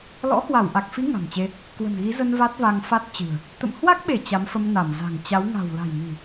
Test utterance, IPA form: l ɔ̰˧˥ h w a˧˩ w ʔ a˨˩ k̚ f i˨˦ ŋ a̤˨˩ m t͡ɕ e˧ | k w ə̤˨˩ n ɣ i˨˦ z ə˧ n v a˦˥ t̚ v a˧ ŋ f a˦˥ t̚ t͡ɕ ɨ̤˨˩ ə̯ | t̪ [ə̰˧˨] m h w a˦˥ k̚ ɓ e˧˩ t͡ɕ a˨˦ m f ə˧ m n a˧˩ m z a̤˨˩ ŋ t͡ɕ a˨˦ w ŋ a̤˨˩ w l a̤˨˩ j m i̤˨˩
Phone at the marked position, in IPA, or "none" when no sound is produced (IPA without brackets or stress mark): ə̰˧˨